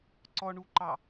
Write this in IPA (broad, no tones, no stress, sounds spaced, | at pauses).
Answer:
ǀ ɔ ɳ u ǃ ɑ